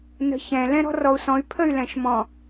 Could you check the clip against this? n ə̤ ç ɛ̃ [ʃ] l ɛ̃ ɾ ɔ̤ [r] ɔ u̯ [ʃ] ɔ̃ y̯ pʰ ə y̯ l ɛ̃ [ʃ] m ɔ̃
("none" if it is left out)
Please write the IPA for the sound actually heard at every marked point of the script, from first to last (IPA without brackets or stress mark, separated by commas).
none, r, s, ʃ